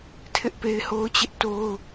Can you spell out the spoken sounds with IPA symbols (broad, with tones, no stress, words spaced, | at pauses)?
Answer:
tʰɪ˦ʔpe˦ɪ̯ho˦ʊ̯ t͡ɕɪ˦ʔto˦ʊ̯